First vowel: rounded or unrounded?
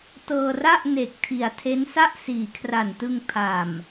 unrounded